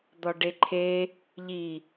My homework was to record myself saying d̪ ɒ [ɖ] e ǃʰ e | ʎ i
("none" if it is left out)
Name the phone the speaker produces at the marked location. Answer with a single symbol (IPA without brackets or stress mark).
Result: ɖ